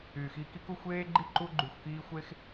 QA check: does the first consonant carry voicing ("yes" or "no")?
no